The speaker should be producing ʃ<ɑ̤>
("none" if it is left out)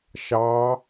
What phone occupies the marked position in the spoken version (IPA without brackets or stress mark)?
ɑ